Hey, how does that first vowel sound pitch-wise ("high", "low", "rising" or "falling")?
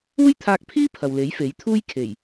high